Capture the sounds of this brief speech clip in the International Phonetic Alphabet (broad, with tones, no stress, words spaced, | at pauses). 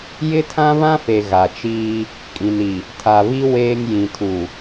jɪ˦tʰã˦βã˦fe˨ ɣa˨t͡ʃiː˦ | kʼĩ˨ni˨ | tʰa˨βi˦ weː˦ŋ jĩ˨tʰu˨